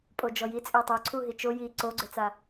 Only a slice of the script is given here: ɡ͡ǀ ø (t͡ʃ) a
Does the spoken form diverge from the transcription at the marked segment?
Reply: yes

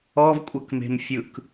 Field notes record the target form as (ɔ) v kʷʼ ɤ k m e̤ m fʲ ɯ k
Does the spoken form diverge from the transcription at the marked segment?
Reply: no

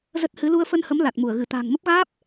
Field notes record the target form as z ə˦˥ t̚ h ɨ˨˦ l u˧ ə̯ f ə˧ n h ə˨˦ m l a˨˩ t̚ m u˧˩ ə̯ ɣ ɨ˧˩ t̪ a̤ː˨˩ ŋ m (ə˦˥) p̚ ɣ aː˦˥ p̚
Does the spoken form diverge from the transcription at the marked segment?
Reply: no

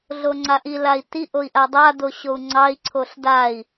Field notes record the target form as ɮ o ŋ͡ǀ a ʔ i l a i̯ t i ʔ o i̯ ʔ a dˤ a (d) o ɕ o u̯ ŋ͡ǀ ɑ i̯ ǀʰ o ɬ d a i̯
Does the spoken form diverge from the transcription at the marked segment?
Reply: no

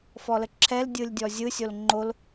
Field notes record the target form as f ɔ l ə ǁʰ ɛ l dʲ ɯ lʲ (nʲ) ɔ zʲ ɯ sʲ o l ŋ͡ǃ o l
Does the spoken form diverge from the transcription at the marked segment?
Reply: yes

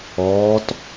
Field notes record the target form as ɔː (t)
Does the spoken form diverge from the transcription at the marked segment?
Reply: no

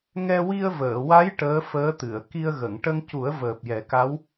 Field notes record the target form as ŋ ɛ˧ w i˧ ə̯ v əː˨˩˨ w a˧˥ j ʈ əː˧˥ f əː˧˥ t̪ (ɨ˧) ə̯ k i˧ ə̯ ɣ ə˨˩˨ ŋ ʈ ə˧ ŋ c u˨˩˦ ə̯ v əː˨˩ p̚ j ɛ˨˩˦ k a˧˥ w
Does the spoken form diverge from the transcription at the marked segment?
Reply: yes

